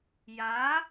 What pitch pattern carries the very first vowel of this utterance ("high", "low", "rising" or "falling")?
rising